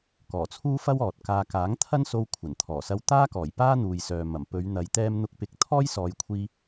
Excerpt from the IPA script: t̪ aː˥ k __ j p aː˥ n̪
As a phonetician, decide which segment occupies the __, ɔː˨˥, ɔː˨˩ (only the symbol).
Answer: ɔː˨˩